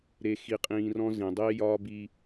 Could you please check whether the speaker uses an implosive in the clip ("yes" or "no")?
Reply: no